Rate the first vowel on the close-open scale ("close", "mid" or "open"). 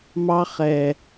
open